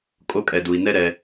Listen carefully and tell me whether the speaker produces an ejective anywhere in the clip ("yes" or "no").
yes